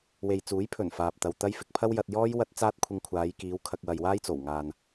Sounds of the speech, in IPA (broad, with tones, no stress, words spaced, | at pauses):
we˨jt͡suː˨˥jpʰɵ˨˩n faː˨p̚t̪ɐ˨wt̪ɐ˥j fɪ˨k̚pʰɐ˥wjɐ˧t̚jɔː˥j wɐ˧t̚ t͡saː˥t̚kʷʰɪ˧ŋkʷʰaː˨˧jkiː˨˧w kʰɐ˧k̚wɐ˨jwaː˥jt͡so˨˩w ŋaː˨n